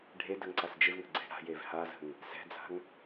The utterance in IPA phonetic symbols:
ɖʱ e d ə ŋ ǀ a s d͡ʒ ɪ v ŋ ə̤ ɡ͡ǀ e̤ ɽ a̤ j e v h a z ə̤ ŋ | s ɛ̤ d͡z a̤ ŋ

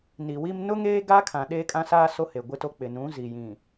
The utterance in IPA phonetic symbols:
n i˨ w i˦ m n ʊ˦ ŋ eː˦ ɡ a˦ kʰ ã˨ ɗ eː˦ kʼ ã˦ s aː˦ s o˦ h e˨ ɡʷ ɪ˦ t o˦ k͡p ɪ˨ n ũ˨˦ z i˨ j ĩ˨

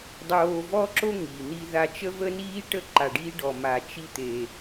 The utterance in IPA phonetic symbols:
dˤ oː˧ v ɔ˥ ǁ o˥ ŋ i˩ n̪ i˧ ð a˧ t͡ʃ ə˥ v əː˥ n iː˥ ʈ ə˥ ǃ a˧ ɖ iː˥ ɖ ɔ˧ m a˧ t͡ʃ i˥ t̪ e˧

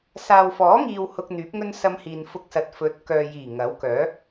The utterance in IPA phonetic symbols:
s aː˨ w f ɔː˨˥ ŋ iː˨ w h ʊ˧ k̚ n̪ yː˨˥ p̚ ŋ ɵ˥ n s ɐ˧ m h iː˨ n f ʊ˧ k̚ s ɐ˨ t̚ f ɵ˨˥ t̚ k œː˨ j iː˨˩ ŋ ɐ˨˥ w k œː˨˥

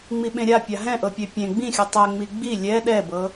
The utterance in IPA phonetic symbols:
ŋ͡m i ɓ ẽ ɾʲ a pʲ a ɦ ɛ̃ ʔ ɤ pʲ e pʲ ẽ ɡ͡b ĩ xʲ u tˤ ɛ ŋ͡m i ɡ͡b i lʲ ɛ ɗ ɛ b ɤ

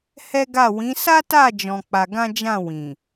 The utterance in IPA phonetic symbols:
h ɛ˦ ɡ a˦˨ w ĩ˨˦ s a˦ t a˦˨ d͡ʒ ɔ̃˧ k͡p a˧ ɡ ã˦ d͡ʒ ã˦˨ w ĩ˨

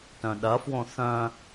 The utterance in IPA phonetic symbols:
t œ̃ ɗ ɐ f w õ θ œ̃

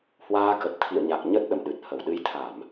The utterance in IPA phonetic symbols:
h w aː˧ k ə˨˩ t̚ t̪ʰ ḭ˧˨ ə̯ ɲ a˨˩ k̚ ɲ ə˦˥ t̚ ɗ ə̰˧˨ m ɗ ɨ˨˩ t̚ h ə˧˩ w ɗ ɨ˨˦ j t̪ʰ a˧˩˨ m

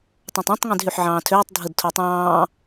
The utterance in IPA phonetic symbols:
tˤ ɑ̃ tˤ ɑ̃ tˤ ŋ ĩ d ɦ y ħ ʕ ɑ̃ː tʰ øː tˤ dʱ ɯ d tʰ o tˤ ɑ̃ː

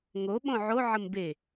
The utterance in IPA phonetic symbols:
ŋ o ɓ õ ʕ o ʕ ə m b e

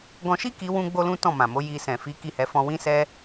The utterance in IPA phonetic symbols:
ɡ ɔ̃˧ ʃ i˦ k i˧ w ũ˦ ɡ͡b o˦ l ũ˦ t ɔ̃˦˨ m ã˨ m o˨˦ j i˧ s ɛ̃˨ f i˨˦ k i˦˨ h ɛ˧ f ɔ̃˧ w ĩ˦ s ɛ˦

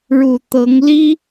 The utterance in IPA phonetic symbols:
ɻ u˨˩ t̪ ɤ˧˥ ŋ l i˥

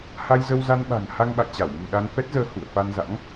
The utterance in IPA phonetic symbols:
h a˧ j z ə˧ w z a˧ n ɓ a̤˨˩ ŋ h a˧ ŋ ɓ a̰˧˨ j t͡ɕ a˧˩ w m ɨ̤˨˩ ɗ a˧ n f ɛ˦˥ t̚ z əː˧ h ṵ˧˨ ə̯ f a˧ n z a̰˧˥ ŋ

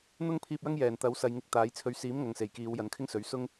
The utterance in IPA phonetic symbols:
n̪ ʊ˥ ŋ pʰ iː˧ p̚ j ɐ˥ ŋ j ɛː˨˩ n t̪ ɐ˨˥ w s ɐ˨ j ŋ ɪ˧ k̚ t̪ aː˨˥ j t͡sʰ ɵ˧ ɥ s iː˨˥ m ŋ ɐ˨˧ ŋ s e˨˩ j k iː˨˧ w j ɐ˨˥ n kʰ ɪ˥ ŋ s ɵ˨˥ ɥ s ʊ˥ ŋ

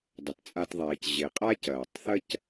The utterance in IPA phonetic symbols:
dˤ ɐ˩ t t͡sʼ a˨ t ðˤ ɛː˩ c ʑ e˩ qʼ a˦ c ɐː˩ tˤ θ ɐ˥ c

